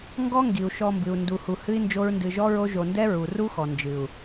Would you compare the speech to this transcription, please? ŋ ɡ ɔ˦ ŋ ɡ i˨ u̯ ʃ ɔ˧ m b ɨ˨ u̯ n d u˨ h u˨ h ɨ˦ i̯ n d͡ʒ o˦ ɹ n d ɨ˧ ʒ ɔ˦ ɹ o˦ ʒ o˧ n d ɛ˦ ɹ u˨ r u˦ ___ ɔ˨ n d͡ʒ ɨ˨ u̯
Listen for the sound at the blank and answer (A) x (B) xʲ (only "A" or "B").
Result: A